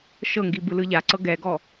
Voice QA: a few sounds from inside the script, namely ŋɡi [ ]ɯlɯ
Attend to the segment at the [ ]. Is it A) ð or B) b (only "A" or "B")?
B